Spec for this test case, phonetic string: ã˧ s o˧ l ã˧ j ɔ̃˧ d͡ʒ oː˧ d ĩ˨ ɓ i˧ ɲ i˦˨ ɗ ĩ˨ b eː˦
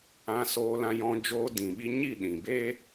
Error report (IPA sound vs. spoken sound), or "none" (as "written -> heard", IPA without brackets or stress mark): o˧ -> oː˧